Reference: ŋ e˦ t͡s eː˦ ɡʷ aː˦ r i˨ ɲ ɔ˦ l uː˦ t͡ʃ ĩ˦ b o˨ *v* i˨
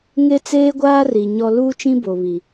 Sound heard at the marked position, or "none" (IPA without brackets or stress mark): β